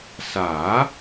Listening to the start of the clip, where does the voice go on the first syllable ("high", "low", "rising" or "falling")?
rising